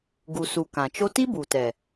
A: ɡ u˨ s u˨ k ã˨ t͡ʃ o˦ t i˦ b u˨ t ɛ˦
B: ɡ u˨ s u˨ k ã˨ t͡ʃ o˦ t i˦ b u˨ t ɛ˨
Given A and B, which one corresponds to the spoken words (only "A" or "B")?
B